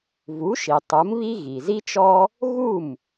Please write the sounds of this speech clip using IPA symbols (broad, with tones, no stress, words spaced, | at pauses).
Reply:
vu˩˥ʃi˩ tˤu˩˥mβi˥ ɣi˩zi˥t͡ʃɔ˥ | ɣu˥˩m